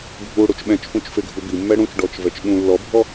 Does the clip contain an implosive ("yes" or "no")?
yes